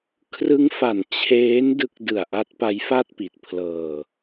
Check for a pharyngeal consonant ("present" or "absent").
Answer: absent